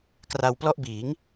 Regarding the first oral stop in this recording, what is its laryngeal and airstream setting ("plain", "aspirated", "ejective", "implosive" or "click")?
plain